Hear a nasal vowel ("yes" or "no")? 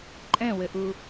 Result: yes